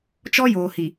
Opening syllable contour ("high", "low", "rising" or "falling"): high